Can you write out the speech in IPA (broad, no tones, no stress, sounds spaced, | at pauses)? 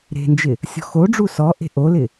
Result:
ɾ e̤ n d͡ʒ ɪ | sʲ ɔ̤ x o ɖ͡ʐ u s ɔ ʔ e̤ ʔ o l ɪ